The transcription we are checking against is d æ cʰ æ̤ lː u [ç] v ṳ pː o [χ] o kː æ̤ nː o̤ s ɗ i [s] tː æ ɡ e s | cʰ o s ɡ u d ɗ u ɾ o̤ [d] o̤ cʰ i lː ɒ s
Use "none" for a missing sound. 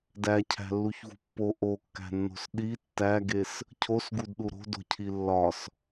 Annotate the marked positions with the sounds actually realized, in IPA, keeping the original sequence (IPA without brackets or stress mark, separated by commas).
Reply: ç, ʔ, none, d